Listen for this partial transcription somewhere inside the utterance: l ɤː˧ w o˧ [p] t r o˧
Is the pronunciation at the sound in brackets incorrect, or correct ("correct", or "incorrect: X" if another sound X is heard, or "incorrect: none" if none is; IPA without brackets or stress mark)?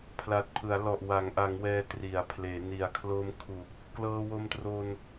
incorrect: m